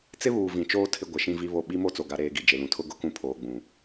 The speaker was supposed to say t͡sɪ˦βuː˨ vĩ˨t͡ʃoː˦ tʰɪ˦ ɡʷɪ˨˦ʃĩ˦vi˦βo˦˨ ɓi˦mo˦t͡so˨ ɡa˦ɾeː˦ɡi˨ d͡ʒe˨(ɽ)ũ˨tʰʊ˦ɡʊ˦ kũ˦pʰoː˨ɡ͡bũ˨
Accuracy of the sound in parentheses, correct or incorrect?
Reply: incorrect